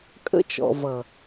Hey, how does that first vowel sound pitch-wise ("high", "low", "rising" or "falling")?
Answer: high